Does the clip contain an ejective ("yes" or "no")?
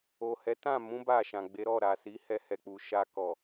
no